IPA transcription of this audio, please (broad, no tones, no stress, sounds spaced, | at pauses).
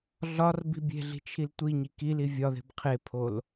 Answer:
ɮ ɒ r b i̤ bʲ e̤ ɮ i̤ t͡ʃʰ i l tʷ i ɲ i k i l i vʲ ɒ ð e̤ b qʰ e pʰ o l